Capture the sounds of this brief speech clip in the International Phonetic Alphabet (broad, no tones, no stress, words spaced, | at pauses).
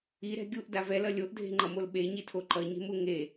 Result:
iɾɛ̤ ɡʲuʔda vɛlʌ lʲoʔdʱe̤ŋ͡ǃʌmol ɓeɲitʰo ǃʌɲe̤mu ŋe